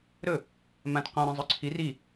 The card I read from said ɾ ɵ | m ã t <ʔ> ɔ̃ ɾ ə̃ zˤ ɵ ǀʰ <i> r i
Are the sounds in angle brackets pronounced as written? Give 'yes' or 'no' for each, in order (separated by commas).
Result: no, yes